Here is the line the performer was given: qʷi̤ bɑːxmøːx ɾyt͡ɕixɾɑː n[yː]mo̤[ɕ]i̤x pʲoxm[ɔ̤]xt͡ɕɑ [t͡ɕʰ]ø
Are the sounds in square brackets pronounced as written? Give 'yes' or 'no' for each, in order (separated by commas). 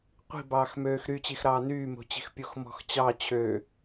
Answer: yes, no, yes, yes